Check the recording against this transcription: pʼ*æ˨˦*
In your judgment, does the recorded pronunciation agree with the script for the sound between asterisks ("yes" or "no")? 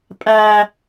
no